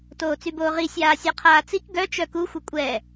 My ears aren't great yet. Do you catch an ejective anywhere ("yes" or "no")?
yes